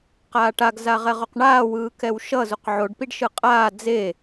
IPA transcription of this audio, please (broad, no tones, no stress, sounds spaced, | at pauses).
q aː ʈ a ɡ z a ʁ ɛ ʁ o q ɳ aː w ɯː k ɛ w ʃ ʌ z u q ʕ o ɖ p i ɖ ʃ ɯ qʼ aː d͡z e